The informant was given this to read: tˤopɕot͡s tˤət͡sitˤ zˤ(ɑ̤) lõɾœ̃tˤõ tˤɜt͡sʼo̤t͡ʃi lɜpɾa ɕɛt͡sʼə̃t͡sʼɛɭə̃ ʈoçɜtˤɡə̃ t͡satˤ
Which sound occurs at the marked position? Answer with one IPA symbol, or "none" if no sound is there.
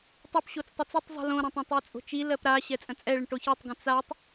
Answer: ə̤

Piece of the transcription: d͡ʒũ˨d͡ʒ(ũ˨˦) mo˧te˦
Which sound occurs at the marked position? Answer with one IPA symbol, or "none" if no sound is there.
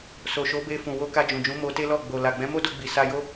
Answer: ũ˨˦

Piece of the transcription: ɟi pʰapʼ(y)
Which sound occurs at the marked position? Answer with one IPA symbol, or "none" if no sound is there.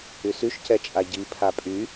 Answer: y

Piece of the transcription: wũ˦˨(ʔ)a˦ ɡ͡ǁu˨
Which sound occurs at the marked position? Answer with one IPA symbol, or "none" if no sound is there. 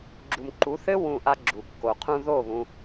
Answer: ʔ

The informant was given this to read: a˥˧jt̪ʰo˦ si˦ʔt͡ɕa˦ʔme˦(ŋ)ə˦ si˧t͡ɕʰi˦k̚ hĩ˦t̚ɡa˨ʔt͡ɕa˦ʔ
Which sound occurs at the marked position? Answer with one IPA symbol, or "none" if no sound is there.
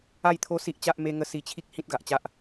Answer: ŋ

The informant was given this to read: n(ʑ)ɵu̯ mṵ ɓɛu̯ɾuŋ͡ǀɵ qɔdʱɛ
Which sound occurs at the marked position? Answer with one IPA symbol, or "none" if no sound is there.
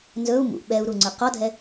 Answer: z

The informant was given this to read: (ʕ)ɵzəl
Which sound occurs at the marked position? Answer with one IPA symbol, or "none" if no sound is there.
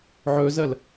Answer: ʕ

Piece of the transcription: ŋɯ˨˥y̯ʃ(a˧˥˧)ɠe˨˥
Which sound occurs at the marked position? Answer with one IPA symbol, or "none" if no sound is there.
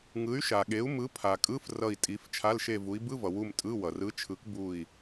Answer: a˨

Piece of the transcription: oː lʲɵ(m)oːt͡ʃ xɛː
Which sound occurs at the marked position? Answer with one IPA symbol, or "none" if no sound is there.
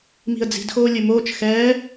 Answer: m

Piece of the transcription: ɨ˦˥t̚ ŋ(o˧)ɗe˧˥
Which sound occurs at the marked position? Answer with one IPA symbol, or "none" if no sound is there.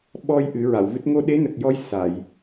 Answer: o˧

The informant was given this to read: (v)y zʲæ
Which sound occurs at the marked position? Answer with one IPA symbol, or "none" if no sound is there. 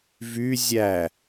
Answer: v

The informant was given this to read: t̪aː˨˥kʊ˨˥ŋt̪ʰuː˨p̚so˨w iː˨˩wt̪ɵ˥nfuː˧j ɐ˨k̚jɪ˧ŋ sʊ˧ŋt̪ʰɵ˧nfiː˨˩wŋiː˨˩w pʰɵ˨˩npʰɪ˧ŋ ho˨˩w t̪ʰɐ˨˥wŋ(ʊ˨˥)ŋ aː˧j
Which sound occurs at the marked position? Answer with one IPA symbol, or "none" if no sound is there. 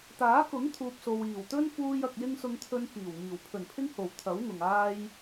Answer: ʊ˨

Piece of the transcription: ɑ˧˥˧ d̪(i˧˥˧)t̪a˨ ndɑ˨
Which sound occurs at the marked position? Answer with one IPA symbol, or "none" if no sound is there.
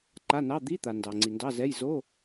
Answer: i˧˥˧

